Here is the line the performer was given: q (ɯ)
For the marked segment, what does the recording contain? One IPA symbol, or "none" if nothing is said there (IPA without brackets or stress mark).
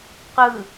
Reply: ɯ